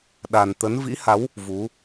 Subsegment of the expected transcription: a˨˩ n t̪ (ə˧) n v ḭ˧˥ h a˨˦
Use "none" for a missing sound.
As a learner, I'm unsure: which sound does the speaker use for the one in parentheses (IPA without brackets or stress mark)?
ə˨˦